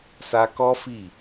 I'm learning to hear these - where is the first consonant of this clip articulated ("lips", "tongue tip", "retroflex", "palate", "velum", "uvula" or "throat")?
tongue tip